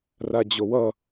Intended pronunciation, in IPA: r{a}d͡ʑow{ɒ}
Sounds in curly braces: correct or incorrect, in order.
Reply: correct, incorrect

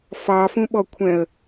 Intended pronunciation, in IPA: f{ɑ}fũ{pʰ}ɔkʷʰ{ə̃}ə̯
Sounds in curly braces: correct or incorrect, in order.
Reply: correct, incorrect, incorrect

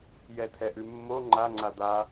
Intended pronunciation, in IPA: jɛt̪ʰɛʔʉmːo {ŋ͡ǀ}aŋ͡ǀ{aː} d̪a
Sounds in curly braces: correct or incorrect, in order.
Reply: incorrect, incorrect

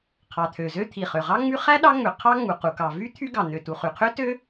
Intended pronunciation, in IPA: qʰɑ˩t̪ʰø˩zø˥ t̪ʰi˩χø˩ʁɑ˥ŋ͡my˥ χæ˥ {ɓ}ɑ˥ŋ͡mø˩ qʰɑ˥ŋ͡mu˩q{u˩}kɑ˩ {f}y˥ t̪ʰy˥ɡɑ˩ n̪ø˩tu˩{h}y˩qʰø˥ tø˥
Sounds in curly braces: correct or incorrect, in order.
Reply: incorrect, correct, incorrect, incorrect

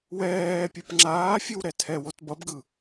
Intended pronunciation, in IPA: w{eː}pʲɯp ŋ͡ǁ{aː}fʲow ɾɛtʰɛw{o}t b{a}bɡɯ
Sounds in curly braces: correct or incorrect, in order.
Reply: incorrect, correct, correct, incorrect

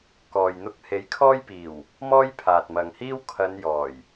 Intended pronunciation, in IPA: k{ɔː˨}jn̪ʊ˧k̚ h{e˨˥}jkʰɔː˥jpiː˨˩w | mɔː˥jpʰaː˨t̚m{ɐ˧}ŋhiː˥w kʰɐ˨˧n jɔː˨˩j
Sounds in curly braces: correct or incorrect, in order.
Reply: correct, correct, incorrect

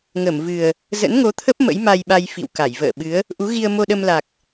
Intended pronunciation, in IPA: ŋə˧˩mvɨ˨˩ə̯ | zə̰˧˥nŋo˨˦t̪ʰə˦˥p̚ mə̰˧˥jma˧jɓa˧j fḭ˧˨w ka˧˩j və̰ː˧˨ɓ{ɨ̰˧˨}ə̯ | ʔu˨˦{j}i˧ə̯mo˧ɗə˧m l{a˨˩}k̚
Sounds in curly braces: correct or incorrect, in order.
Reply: incorrect, incorrect, correct

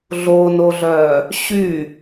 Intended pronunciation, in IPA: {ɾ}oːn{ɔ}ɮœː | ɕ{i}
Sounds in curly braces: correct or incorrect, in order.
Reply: incorrect, incorrect, incorrect

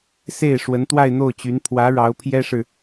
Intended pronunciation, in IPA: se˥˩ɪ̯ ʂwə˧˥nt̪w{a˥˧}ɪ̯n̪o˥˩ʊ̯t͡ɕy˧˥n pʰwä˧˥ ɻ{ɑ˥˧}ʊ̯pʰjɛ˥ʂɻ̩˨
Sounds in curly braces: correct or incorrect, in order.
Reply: correct, incorrect

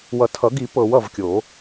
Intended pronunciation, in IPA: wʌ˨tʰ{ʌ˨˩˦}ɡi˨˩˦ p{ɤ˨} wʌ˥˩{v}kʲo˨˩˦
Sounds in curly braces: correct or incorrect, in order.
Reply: correct, correct, correct

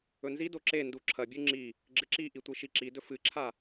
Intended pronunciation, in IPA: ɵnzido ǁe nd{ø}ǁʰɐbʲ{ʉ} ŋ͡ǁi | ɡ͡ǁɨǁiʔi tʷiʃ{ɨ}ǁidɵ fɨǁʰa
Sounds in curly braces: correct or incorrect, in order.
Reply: incorrect, correct, incorrect

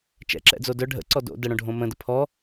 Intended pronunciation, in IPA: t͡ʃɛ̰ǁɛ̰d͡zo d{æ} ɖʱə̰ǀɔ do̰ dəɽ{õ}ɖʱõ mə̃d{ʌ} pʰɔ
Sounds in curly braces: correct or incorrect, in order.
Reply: incorrect, correct, incorrect

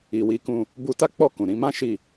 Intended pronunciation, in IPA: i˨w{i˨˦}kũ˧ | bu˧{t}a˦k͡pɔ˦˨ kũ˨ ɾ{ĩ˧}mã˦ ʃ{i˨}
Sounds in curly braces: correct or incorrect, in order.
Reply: correct, correct, correct, incorrect

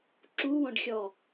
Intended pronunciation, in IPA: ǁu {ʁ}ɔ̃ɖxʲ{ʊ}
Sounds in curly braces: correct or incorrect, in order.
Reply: incorrect, incorrect

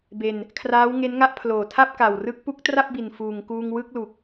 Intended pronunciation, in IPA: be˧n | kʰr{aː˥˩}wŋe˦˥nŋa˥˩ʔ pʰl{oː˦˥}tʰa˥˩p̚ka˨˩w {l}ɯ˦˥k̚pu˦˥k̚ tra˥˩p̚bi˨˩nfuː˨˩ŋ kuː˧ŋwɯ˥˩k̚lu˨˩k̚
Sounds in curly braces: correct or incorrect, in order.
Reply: incorrect, incorrect, incorrect

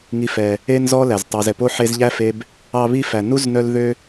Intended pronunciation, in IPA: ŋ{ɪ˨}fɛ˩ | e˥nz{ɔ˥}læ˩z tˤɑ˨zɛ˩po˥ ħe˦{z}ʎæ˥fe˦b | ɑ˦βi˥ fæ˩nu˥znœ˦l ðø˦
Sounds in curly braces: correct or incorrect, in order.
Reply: incorrect, correct, correct

